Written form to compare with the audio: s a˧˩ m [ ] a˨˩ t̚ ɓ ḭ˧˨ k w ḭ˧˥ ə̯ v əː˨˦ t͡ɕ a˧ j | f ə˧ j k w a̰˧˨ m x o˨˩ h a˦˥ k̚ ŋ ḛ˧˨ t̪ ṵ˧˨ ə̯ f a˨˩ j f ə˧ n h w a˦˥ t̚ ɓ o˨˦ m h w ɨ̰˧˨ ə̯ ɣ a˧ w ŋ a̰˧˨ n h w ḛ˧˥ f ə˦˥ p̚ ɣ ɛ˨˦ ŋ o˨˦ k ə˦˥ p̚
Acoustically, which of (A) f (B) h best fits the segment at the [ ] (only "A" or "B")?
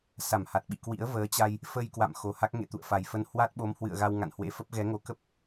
B